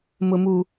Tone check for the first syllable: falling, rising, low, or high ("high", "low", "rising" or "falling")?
low